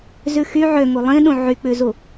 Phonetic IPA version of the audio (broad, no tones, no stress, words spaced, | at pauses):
zʉxy ʕø ŋulˠĩɗũ ʕyk͡pʉzu